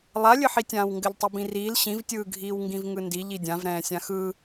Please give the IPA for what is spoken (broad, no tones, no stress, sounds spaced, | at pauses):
lˠ a lʲ ɘ ħ i tʲ ãː w ŋ ɡ ɘ ʎ tˤ ɘ b ĩ r iː l ɕ ĩ v tʲ ɯː ɡʱ iː w ŋ ɡ ĩ v ŋ ɯ n d i ʎ i dʲ ã v ɾ ɛ̃ː sʲ ã x ɯ